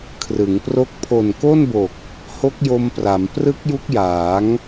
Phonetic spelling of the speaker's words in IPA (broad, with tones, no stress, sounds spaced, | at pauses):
kʰ r ɯ˩˦ ŋ p r o˦˥ k̚ pʰ o˨˩ n k o˥˩ n b o˨˩ k̚ | h o˦˥ k̚ j o˧ m p r a˩˦ m p r ɯ˦˥ k̚ j u˦˥ k̚ j aː˩˦ ŋ